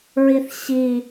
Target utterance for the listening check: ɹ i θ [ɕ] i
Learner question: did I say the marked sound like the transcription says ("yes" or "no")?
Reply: yes